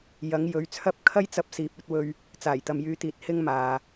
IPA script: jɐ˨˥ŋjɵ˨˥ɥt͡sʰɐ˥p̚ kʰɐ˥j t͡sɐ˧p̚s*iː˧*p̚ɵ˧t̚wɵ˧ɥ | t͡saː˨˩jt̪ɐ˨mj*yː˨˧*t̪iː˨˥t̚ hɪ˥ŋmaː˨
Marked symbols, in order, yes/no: no, yes

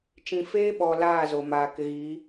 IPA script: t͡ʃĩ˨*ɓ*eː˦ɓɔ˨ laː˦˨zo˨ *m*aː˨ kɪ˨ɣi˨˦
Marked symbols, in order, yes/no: no, yes

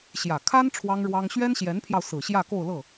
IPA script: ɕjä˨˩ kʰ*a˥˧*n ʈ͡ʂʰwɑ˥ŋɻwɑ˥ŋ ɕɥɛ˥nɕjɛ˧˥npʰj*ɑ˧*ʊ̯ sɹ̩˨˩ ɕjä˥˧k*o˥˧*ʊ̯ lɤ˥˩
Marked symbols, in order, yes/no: no, yes, yes

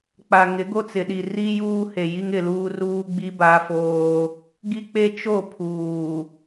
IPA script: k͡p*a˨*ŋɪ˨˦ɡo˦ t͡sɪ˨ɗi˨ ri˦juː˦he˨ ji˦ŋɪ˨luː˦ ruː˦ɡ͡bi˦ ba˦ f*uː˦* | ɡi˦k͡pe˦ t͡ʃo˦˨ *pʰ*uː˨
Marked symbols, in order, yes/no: yes, no, yes

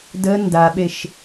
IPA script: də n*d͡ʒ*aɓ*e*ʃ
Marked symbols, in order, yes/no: no, yes

